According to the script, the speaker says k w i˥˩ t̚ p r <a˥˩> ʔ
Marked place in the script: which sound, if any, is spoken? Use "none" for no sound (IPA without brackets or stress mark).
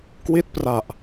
a˨˩